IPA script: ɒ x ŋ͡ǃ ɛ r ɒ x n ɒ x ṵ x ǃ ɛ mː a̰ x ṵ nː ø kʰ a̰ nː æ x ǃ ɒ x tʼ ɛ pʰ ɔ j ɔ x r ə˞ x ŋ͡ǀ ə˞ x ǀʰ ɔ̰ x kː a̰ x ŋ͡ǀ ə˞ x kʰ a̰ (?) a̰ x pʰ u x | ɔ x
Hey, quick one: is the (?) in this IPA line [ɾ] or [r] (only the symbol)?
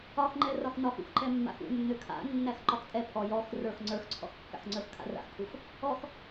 r